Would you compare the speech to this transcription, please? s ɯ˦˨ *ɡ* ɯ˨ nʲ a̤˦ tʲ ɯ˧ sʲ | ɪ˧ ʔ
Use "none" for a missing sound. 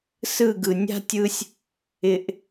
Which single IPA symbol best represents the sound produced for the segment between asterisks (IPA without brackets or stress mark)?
ɡ